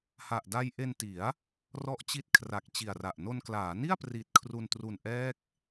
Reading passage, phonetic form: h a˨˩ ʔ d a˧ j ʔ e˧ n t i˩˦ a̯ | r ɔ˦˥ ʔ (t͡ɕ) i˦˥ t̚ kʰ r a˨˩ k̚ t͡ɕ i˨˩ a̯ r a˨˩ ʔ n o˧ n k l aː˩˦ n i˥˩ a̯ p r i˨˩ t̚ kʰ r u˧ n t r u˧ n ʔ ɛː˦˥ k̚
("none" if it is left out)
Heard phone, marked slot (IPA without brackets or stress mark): t͡ɕ